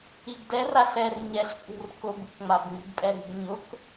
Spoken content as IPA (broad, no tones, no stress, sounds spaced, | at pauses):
i ɡ d ɛ r a ɬ ɛ r ɲ ɛ ɬ pʼ ṳ r k ʊ b u k ŋ͡m a b ŋ͡m i̤ b pʼ ɛ ɾ i̤ ɡ ɲ ʊ k